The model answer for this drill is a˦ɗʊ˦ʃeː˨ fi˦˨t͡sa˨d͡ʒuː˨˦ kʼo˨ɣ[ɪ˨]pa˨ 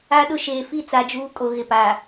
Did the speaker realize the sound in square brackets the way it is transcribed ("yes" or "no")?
yes